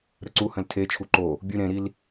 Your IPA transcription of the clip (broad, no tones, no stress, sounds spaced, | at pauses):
ɾ ə ǀ u h ə̃ l tʰ e t͡ʃʰ u ǃ o | bʲ ʉ ɾ ẽ ɾ i l